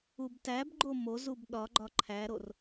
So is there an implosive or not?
yes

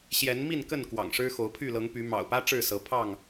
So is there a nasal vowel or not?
no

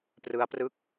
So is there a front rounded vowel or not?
no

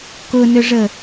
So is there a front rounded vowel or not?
yes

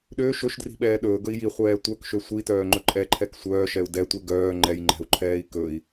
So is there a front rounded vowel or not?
yes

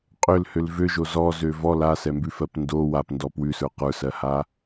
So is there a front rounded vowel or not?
yes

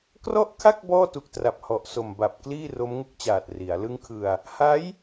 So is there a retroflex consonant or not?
no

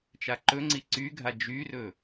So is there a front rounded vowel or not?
yes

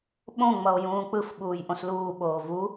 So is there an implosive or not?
yes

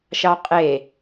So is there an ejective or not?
yes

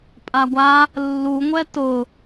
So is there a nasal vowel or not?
no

